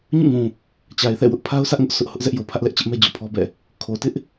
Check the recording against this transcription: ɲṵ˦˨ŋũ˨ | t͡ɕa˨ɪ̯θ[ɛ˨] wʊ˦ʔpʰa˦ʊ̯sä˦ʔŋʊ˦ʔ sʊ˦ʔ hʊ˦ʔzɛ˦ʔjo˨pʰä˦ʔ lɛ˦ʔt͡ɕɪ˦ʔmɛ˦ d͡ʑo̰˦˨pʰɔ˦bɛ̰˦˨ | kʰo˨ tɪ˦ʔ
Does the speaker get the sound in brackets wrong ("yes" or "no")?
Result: yes